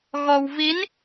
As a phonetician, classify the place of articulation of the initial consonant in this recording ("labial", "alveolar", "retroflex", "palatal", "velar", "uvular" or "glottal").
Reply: velar